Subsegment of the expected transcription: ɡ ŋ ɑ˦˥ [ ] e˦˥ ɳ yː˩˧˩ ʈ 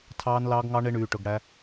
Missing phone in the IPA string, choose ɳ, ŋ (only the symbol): ɳ